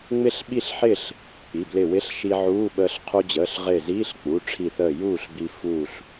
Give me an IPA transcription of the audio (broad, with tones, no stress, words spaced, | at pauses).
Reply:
ŋ͡mɪ˥˨ɬɓi˥˨ɬħɪː˥˨ɬ | k͡pi˩˧˩blɪ˧˩wɪ˧˥˧ɬʃi˧ ʕuː˧˥˧ɓəː˧ɬ qʰu˧d͡ʑəː˩˧˩ɬʁɪː˧˩ziː˧˥˧ɬ k͡pu˩˧˩ ʈ͡ʂʰi˧˩θəː˧˩ juː˥˨ɬbi˧ fuː˧˩ɬ